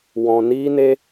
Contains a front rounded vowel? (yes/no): no